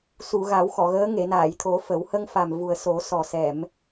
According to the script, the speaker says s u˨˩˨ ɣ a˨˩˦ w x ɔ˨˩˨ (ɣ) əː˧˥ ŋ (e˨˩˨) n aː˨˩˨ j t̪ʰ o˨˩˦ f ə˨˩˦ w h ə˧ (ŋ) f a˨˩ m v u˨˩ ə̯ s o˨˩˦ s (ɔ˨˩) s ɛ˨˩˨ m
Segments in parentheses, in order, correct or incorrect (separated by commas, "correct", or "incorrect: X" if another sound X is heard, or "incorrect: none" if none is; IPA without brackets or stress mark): correct, correct, correct, correct